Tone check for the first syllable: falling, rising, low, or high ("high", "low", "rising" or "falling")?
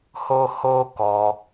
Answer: high